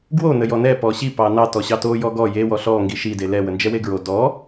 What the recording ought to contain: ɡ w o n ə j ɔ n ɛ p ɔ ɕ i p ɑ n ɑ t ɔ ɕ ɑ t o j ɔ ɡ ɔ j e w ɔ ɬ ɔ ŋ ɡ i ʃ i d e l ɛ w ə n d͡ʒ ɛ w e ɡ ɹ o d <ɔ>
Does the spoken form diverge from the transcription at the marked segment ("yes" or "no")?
no